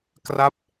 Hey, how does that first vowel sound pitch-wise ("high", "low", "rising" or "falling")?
falling